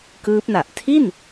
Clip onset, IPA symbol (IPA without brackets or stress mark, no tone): k